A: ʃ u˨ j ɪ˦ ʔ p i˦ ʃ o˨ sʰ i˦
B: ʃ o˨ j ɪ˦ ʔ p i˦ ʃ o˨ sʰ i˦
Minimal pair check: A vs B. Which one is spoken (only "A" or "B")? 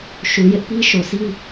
A